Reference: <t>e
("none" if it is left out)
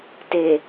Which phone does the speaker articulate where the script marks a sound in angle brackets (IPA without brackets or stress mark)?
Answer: t